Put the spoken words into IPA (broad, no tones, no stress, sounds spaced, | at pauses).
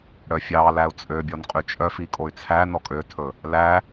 ɽ œ fʲ ɑ l æ u̯ t͡sʼ ø bʲ ɔ n qʼ y t͡ʃʼ œ f i kʼ o y̯ t͡sʰ æ n ɔ kʼ ø tʰ ɵ | l æ